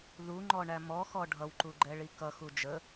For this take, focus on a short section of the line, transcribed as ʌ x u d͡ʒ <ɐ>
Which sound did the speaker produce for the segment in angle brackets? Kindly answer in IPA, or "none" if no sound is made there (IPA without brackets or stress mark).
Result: ə